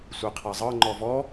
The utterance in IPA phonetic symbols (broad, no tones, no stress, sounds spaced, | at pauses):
sʷ e qʰ a zˤ ɤ ŋ͡ǃ ɔ v ɔ